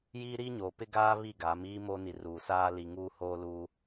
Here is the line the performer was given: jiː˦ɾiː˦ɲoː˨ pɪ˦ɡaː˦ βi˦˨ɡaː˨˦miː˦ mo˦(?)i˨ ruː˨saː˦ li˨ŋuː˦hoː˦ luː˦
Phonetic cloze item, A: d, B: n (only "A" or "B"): B